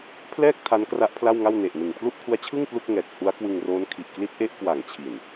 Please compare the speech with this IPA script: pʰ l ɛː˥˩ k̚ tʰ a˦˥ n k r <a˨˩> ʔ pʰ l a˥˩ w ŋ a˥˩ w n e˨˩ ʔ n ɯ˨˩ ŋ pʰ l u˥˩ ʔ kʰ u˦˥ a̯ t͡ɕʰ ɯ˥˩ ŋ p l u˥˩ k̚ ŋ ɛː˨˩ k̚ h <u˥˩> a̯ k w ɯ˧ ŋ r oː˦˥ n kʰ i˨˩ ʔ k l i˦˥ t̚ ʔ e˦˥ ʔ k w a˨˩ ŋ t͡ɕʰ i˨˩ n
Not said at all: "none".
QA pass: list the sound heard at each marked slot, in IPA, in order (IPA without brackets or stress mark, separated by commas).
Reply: a˦˥, u˦˥